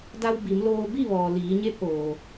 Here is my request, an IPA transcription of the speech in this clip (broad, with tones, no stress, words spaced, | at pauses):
da˧wbi˩˧mloː˧ bi˥˨ʋɔː˩ liː˩˧ɲe˧˥p̚ʔoː˩